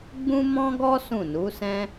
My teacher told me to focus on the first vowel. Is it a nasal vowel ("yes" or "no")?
yes